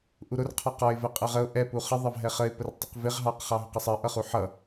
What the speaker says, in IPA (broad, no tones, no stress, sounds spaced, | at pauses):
ʔ u ɾ ʊ r qʰ ɒ q ɒ ɪ̯ v ɛ qʼ ɜ ʁ ə ʊ̯ ʔ ɛ p u χ ə ðˤ ɑ v ɦ ɛ χ ə ɪ̯ p ə r tˤ ɪ q v ɪ ʁ ɦ ɑ q χ ɑ ɦ ʊ q ə sˤ ɜ ʔ ʌ χ u ħ ʌ